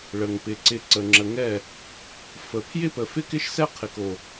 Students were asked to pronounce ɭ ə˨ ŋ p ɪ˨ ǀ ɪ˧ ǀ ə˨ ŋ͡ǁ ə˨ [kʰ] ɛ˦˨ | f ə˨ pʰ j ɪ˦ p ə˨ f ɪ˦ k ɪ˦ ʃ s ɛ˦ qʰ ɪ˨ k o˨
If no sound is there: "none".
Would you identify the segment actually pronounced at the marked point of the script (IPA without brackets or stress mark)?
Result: ŋ